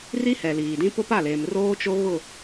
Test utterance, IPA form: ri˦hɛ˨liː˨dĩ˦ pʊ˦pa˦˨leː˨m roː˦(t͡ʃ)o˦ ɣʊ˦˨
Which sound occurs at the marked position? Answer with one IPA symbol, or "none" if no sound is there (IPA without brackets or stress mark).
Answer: t͡ʃ